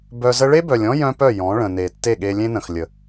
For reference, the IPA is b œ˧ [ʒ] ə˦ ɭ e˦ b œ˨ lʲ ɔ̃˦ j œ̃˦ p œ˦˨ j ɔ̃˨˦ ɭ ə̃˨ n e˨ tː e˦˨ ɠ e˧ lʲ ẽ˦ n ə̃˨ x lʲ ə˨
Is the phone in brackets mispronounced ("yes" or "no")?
yes